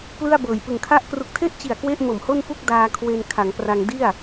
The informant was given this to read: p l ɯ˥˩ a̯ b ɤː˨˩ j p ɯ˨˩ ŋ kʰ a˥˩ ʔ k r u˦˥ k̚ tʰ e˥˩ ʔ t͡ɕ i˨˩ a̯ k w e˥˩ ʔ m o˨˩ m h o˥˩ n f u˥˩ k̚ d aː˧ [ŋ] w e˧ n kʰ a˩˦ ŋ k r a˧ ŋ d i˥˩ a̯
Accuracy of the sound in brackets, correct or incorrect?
incorrect